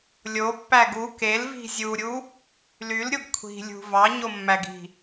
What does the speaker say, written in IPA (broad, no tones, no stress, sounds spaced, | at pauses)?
lʲ o pː æ ɡ u k e l v i̤ zʲ u ɾʲ u | l y l ɾʲ o ɡ kʷʰ i̤ lʲ ṳ v ɑ ɲ o mː æ ɡ i̤